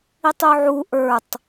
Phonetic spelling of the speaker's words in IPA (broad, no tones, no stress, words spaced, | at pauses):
itˤuʕu ʔə˞tˤ